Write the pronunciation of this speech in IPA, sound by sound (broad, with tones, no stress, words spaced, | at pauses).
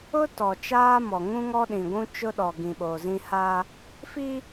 ʊ˦ tɔ˨t͡ʃaː˦mɔ˨ ŋũ˦ŋɔ˦ɗĩ˨ɡʷũ˦ t͡ʃʊ˦ɗɔ˨ ɡĩ˨ɓoː˨zĩ˦ ha˦ | fi˦